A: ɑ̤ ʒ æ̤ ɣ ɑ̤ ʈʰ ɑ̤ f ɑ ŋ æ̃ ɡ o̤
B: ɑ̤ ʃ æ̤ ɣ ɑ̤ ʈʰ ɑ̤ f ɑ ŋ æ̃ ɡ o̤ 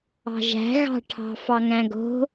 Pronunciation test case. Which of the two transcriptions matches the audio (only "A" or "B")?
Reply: A